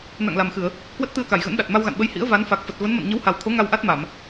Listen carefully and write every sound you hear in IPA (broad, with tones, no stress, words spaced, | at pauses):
na̰˧˨ŋla˨˩mxɨ˧˩˨ə̯ | kwə˦˥t̚ t̪ɨ˧ə̯ka˧˩jɣə̰˧˥nɗa˨˩t̚ ma˧wɣa̰˧˨nɓə˧j hḭ˧˥ə̯va˨˦n fa˨˩k̚fə˨˩t̚ və˨˦nmə̰˧˨n ɲə˨˦wha˨˩wt̪ʰo˨˦ ŋa˧wʔa˦˥t̚ma˧˩˨m